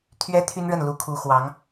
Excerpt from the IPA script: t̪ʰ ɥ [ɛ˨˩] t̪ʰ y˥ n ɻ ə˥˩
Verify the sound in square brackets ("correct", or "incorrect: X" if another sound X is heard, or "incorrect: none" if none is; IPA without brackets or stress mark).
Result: incorrect: ɛ˥